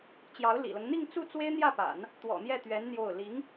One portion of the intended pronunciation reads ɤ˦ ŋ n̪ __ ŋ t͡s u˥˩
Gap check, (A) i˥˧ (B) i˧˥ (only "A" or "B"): A